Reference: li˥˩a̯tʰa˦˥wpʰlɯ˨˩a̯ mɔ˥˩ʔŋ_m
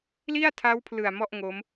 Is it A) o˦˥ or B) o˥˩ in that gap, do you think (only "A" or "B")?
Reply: A